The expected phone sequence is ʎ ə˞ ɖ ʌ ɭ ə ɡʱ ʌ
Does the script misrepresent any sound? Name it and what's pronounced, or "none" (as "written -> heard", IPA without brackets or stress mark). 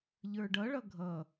ə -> ʌ